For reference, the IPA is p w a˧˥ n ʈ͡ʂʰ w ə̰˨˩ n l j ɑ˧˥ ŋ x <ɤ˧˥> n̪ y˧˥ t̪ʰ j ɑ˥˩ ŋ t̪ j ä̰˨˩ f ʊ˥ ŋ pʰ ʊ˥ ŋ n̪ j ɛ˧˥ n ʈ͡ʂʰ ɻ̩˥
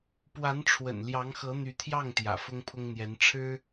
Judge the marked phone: correct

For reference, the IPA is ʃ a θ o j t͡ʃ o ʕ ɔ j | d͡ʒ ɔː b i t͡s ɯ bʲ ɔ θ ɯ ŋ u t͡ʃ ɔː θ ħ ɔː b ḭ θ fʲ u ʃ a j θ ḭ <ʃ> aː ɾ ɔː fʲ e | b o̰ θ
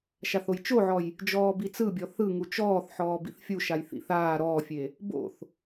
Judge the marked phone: incorrect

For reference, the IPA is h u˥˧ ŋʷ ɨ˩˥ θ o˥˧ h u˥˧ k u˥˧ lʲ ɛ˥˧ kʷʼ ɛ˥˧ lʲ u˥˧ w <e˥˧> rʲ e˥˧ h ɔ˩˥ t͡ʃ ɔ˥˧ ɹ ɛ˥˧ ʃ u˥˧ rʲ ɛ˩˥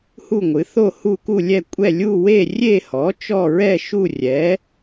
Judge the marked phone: correct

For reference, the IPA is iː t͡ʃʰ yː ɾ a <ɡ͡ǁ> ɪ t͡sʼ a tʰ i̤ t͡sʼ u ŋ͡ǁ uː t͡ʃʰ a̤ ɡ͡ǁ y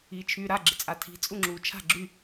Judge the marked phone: correct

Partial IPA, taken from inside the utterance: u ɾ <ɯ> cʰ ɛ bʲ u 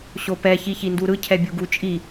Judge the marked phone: correct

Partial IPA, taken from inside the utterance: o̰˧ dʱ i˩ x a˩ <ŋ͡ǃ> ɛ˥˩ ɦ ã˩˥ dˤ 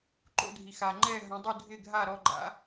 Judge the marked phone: correct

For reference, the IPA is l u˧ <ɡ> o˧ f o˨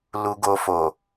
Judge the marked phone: correct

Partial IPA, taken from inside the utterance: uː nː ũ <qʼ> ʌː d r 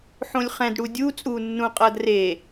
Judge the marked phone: correct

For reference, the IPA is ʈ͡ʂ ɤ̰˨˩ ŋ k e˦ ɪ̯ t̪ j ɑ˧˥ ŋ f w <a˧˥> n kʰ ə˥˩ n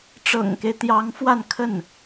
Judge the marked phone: incorrect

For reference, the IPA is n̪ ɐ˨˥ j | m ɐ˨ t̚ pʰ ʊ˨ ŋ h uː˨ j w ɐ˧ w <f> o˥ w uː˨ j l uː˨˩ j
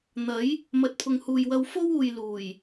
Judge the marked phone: correct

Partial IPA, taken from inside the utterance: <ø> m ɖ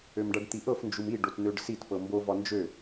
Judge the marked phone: correct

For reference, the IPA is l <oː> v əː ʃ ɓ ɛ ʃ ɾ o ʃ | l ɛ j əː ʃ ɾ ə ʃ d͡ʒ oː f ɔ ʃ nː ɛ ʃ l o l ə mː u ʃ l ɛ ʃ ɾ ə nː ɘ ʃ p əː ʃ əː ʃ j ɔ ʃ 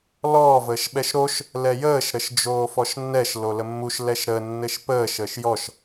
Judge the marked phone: incorrect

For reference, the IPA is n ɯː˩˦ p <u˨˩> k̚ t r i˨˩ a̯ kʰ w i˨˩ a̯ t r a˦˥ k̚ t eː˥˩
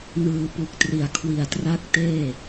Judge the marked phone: correct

